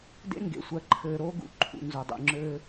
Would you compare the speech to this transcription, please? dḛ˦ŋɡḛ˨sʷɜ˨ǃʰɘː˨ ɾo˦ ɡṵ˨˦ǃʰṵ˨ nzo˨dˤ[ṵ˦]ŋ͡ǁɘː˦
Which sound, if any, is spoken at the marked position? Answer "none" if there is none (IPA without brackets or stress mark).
ṵ˨